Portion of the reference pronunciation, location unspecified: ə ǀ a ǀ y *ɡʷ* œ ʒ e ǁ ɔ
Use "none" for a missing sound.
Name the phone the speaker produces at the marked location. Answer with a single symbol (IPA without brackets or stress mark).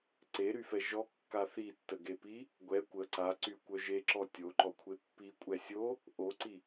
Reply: kʷ